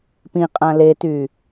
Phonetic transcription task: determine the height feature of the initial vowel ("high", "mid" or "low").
high